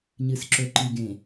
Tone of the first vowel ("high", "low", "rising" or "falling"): low